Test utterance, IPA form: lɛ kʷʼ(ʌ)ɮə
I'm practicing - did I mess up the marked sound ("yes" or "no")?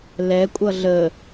no